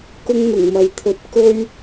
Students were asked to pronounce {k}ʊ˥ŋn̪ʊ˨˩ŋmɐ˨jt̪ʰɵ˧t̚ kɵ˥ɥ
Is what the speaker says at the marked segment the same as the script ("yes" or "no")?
yes